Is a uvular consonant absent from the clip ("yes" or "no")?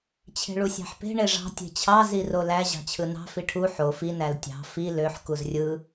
yes